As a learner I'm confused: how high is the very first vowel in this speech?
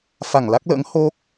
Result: low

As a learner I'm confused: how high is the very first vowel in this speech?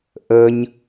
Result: mid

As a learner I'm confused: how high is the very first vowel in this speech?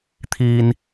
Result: high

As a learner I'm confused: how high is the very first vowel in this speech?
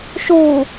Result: high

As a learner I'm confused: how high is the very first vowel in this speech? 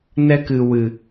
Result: mid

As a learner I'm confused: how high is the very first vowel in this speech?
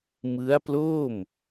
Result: high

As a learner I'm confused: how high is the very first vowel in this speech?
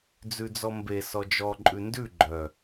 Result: high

